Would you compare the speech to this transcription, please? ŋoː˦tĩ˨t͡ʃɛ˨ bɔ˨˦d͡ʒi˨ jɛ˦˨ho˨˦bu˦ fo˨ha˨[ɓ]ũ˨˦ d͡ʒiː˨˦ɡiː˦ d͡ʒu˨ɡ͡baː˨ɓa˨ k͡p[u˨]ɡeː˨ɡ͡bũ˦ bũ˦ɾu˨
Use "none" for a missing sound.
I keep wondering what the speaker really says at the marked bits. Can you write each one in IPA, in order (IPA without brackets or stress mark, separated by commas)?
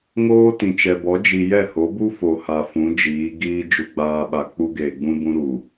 f, u˦